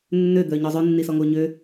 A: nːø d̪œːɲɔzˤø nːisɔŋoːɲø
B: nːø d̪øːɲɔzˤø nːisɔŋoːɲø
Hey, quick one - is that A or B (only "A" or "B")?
A